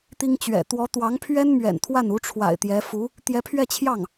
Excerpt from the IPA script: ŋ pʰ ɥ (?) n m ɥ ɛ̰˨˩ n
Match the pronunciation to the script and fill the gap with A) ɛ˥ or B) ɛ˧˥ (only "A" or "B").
A